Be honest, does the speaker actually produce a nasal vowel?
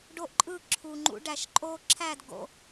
no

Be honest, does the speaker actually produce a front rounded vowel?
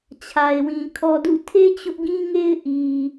no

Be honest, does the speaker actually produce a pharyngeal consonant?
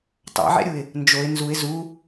yes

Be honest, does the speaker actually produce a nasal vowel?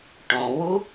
yes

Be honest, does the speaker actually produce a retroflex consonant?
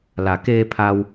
no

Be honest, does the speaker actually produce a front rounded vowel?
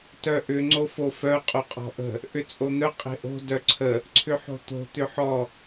yes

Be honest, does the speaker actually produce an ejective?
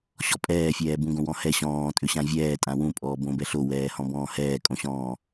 yes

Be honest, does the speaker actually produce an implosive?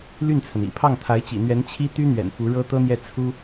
no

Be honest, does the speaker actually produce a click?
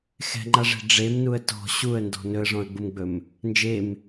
yes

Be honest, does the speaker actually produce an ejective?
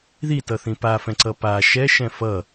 no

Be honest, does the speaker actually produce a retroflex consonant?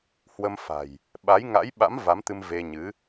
no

